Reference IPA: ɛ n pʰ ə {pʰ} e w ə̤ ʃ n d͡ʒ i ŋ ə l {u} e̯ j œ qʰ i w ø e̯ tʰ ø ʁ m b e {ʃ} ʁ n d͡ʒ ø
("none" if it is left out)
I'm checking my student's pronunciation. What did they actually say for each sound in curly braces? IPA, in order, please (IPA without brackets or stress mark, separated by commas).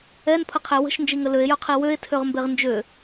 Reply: qʰ, ø, none